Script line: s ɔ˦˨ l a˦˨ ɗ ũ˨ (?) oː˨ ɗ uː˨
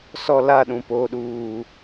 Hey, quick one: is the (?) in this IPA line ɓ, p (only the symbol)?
p